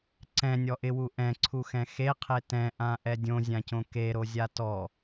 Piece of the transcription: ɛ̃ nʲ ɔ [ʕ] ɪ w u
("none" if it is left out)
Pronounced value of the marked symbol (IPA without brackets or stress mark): ʔ